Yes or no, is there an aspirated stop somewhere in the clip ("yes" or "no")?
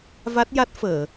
no